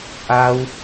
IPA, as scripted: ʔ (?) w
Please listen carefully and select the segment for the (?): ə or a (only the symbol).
a